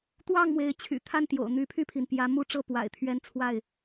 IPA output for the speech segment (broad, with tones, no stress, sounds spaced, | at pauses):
t̪ w ɑ˥˨ ŋ m w e˨˦ ɪ̯ t͡ɕʰ y̰˨˩ t̪ʰ a˥˨ n t̪ j o̰˨˩ ʊ̯ n̪ y˨˦ pʰ y˥˨ pʰ i˩ n p j ä˨˦ m u˥˨ ʈ͡ʂ ɤ˥˨ p w a̰˨˩ ɪ̯ t̪ʰ ɥ ɛ˦ n t͡sʰ w a˥˨ ɪ̯